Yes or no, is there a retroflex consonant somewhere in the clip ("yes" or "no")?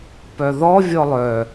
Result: no